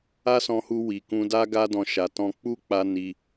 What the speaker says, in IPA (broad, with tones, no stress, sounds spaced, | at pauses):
a˦ s ɔ̃˧ h u˧ w i˨ k ũ˧ d a˦ ɡ a˦ d ɔ̃˧ ʃ a˨ t ɔ̃˧ k͡p u˦ k͡p a˧ n i˧